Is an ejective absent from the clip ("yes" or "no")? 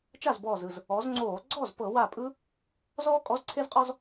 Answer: no